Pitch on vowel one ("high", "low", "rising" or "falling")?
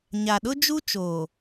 low